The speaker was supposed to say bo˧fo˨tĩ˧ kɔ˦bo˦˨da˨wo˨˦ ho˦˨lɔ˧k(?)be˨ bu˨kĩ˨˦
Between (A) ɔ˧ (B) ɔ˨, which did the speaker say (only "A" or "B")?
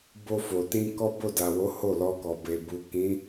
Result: B